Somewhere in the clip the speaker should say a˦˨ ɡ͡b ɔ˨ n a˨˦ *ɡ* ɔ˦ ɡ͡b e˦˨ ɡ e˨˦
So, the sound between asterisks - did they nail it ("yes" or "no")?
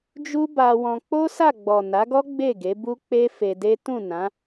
yes